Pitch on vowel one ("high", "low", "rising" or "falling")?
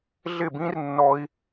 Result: falling